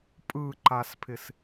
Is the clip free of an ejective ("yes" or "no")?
no